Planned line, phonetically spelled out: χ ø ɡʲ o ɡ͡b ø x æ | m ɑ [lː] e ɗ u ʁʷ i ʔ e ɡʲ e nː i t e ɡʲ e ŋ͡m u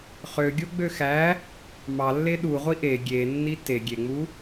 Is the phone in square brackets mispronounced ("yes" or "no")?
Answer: no